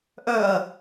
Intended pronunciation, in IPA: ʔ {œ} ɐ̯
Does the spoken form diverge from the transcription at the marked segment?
no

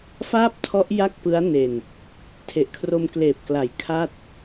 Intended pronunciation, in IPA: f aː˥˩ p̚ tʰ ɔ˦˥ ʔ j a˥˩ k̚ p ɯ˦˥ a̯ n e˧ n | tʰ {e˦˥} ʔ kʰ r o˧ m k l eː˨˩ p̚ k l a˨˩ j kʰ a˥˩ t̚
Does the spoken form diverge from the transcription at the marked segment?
yes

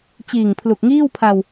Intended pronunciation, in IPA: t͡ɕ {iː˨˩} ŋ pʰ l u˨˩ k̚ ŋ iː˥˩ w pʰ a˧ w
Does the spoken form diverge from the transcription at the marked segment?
no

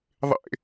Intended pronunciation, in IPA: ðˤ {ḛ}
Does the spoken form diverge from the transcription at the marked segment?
no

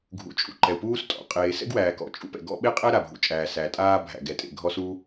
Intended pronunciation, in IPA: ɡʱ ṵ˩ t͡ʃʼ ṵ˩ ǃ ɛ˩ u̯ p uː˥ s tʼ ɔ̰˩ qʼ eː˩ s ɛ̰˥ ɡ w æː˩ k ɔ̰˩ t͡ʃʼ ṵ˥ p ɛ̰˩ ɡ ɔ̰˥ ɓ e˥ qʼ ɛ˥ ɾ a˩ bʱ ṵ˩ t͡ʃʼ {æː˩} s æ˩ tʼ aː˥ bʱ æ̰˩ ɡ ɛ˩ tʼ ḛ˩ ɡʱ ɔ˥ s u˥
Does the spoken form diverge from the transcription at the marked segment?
no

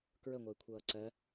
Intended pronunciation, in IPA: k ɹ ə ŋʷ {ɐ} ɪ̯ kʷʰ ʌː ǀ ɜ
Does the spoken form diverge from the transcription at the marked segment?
no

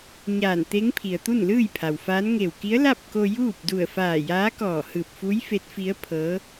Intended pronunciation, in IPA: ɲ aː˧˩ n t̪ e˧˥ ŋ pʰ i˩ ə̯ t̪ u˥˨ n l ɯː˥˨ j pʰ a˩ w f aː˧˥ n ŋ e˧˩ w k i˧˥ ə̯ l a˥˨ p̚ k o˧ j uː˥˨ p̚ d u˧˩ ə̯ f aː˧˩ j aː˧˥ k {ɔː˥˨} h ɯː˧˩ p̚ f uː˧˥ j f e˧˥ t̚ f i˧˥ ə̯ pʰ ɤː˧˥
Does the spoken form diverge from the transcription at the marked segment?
yes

